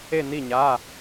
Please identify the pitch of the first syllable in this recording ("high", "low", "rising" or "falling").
falling